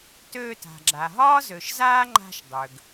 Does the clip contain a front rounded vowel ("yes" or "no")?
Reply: yes